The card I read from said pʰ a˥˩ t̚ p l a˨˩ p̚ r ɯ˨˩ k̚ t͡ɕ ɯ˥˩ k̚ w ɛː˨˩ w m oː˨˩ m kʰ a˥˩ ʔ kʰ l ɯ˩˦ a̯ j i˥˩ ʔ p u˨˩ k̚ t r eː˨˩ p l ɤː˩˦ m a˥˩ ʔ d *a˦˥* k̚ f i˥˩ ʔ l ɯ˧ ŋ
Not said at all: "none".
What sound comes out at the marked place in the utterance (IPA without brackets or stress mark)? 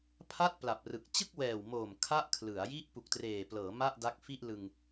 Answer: a˦˥